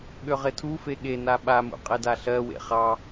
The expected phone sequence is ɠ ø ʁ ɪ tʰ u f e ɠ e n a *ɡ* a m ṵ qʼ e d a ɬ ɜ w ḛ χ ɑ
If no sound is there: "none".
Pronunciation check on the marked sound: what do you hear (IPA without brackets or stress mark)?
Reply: ɓ